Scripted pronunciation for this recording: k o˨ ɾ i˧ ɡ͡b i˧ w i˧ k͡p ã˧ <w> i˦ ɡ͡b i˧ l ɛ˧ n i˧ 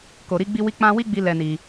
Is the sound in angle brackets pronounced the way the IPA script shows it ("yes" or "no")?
yes